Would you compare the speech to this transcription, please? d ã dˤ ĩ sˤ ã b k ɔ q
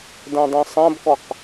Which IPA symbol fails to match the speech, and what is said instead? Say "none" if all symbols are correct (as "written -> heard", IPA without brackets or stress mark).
none